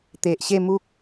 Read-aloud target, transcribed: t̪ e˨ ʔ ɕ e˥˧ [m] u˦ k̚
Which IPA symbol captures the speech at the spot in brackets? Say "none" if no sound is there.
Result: m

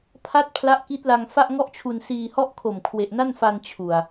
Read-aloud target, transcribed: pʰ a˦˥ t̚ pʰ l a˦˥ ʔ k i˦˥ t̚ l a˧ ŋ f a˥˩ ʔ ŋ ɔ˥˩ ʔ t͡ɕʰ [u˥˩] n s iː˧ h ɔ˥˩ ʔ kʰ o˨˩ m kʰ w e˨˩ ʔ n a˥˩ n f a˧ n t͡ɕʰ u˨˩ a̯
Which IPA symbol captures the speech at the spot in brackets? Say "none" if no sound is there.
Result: u˧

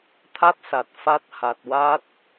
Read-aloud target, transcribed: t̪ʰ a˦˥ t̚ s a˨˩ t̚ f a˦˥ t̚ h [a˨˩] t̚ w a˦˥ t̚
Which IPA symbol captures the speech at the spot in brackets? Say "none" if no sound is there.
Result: a˨˩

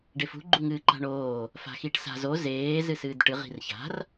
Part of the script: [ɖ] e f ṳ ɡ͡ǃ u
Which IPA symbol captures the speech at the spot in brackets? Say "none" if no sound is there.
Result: ɖ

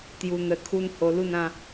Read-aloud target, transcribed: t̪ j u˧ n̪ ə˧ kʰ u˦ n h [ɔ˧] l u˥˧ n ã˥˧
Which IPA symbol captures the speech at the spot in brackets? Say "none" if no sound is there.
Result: o˧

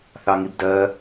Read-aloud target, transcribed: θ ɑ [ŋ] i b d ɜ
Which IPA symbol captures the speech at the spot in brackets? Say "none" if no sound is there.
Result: ŋ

